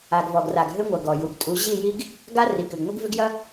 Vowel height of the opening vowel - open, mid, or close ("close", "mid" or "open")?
open